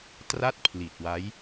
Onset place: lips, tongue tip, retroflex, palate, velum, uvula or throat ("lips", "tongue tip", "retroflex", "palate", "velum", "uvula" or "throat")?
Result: tongue tip